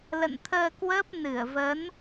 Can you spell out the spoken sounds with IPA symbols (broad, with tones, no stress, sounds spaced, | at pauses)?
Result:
l ə̰˧˨ n t̪ʰ əː˧ k w əː˦˥ p̚ n ɨ˧˩ ə̯ v ə˨˦ n